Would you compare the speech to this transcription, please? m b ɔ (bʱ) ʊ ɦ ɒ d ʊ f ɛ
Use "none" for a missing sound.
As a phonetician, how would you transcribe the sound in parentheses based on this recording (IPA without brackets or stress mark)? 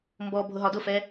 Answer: bʱ